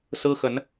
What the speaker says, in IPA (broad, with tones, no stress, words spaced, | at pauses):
sɹ̩˦xə˨˦n